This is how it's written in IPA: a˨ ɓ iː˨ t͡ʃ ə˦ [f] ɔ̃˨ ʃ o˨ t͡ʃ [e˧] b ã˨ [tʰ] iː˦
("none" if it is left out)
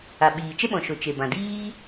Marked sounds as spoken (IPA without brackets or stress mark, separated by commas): ɓ, e˨, d